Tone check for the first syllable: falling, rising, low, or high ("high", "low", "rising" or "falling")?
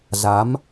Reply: rising